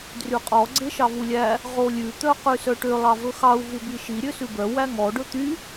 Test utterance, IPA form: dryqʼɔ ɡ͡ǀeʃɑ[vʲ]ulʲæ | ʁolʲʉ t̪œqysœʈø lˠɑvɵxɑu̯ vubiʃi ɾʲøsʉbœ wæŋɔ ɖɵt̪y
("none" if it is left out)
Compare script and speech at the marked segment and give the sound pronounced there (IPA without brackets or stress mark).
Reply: v